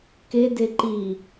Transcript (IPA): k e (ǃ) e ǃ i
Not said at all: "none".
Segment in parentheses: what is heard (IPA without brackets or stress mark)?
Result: d